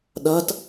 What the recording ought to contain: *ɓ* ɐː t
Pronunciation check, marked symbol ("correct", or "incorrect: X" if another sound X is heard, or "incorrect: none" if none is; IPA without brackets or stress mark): incorrect: ɗ